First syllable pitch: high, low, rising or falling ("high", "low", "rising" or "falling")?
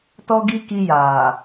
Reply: high